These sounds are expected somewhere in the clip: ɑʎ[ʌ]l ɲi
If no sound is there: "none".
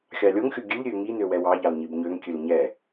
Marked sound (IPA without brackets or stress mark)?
ɑ